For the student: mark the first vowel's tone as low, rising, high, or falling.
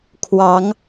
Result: rising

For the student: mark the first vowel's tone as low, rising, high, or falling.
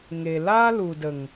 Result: low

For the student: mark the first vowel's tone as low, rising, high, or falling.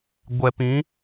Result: low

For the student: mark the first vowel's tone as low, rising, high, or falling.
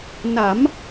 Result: rising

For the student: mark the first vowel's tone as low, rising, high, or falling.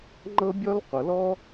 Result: high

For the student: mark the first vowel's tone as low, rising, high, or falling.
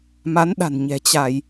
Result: rising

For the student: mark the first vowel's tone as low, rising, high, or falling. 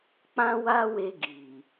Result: high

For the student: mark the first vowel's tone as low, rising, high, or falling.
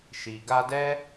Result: low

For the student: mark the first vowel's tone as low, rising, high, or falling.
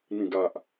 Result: low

